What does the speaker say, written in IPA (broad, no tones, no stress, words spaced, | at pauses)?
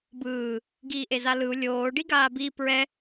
bɯː | ɡiːʔezalɯu̯ lʲoː ɖiɡaːbi pɹɛ